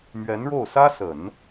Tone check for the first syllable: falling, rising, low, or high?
rising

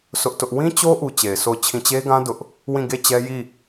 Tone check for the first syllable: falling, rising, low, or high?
high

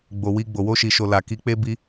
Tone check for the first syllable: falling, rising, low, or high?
low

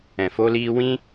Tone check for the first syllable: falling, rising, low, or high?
low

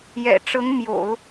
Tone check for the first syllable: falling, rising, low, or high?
low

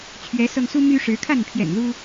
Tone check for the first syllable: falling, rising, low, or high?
rising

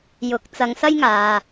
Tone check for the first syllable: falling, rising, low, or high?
rising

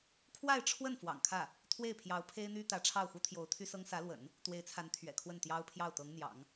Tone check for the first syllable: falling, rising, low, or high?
falling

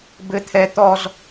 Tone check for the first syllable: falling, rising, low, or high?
high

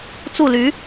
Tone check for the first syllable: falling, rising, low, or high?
falling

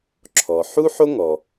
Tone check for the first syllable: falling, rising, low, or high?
low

